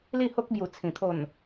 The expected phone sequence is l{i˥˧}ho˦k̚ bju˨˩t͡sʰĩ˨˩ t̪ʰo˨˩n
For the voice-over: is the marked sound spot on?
yes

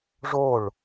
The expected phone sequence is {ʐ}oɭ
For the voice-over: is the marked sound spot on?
yes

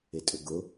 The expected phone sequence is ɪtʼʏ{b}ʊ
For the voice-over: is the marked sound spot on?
no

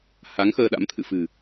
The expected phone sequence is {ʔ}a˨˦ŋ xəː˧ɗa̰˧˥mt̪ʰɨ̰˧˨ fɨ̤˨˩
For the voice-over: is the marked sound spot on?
no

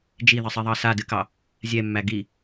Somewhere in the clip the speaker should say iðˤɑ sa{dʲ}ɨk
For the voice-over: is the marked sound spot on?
no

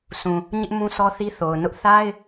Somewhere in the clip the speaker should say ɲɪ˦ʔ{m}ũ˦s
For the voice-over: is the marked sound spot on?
yes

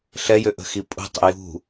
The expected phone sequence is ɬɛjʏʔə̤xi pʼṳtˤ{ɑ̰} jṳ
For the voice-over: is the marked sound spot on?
no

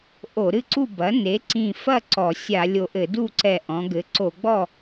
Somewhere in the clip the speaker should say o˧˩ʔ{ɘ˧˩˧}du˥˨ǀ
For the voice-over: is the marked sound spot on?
yes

